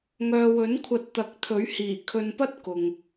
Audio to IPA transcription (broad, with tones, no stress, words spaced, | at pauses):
ŋœː˨wɵ˨˥n kʷʰɐ˧t̚t̪ɐ˨˥k̚t̪ʰɵ˨˥ɥhiː˨˩ kʰɵ˨npɐ˥t̚ kʊ˨ŋ